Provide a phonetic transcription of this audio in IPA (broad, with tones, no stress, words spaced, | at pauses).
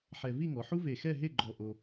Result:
ħɛ˧ vi˥˧ŋɔ˩˧ ħu˥ve˧˩xɛ˥˧ ɦe˥˧ɡ͡ǃɔ˧˩ ʔo˧